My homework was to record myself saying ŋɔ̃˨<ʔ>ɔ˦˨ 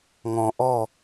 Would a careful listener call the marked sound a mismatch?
no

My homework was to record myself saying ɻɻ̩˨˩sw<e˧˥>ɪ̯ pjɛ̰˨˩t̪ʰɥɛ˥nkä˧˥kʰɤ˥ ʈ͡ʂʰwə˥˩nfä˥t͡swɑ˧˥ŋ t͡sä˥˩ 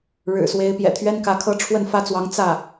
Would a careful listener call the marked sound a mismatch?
no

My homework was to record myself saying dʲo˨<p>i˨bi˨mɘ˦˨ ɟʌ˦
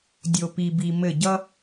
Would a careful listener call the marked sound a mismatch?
no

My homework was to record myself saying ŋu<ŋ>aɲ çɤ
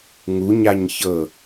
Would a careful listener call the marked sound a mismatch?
yes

